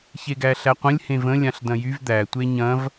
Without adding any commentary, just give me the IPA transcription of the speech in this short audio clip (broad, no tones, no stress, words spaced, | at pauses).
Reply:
çeɡæɬæqʷə̃lʲ hẽvə̃ lʲãɬdɐ̃jyv d̪æ tʷeɲɐ̃v